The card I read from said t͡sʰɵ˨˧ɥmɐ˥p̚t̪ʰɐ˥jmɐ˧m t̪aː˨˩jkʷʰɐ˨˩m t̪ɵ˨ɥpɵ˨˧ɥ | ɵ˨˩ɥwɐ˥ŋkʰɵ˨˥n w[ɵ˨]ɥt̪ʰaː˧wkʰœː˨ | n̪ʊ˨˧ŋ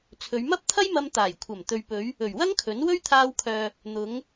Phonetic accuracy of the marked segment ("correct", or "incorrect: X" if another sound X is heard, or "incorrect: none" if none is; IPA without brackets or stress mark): incorrect: ɵ˥